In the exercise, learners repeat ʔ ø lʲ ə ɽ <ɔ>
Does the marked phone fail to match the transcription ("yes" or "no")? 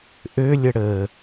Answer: yes